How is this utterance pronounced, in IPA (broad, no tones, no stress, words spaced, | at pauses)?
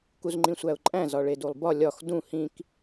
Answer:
kuzŋ͡ǃĩsʷæʊ̯ǃʼæ̃ zɒɭedulˠbɒ lʲɒx dũ hĩk